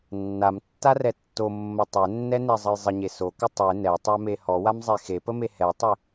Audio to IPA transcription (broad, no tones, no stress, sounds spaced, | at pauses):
nː a m tː a r ɛ tː o mː ə tˤ ɛ nː ɛ n e zˤ ə j zˤ ə ɲ e s o k ə tˤ e n ɛ tˤ a m e h ɔ w a m zˤ e x e p ə m e h ɛ tˤ ɪ